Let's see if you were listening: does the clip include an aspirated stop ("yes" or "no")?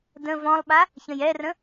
no